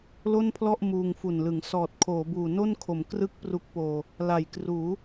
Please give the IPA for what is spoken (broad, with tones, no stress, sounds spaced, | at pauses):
l o˥˩ n pʰ l ɔ˥˩ ʔ m uː˧ ŋ f u˨˩ n l ɯ˩˦ ŋ s ɔː˨˩ t̚ kʰ oː˩˦ b uː˨˩ n o˥˩ n kʰ o˩˦ m k r ɯ˥˩ k̚ p r u˦˥ k̚ p oː˧ | l a˨˩ j k r uː˩˦